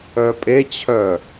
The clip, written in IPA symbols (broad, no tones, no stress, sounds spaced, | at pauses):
œ pʼ e t͡ɕʰ œ